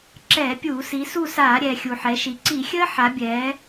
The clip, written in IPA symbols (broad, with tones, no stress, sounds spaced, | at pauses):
ǁ ɛː˧˩˧ pʲ uː˧˩˧ s i˩˧ s u˦˨ s aː˧˩˧ ɾʲ ɛː˩ xʲ u˩ ħ ɛ˩˧ ʃ i˩ ǀ i˧˩˧ xʲ əː˦˥ ħ a˩˧ bʲ ɛː˩˧